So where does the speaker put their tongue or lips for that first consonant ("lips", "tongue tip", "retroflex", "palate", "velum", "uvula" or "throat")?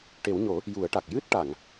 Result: retroflex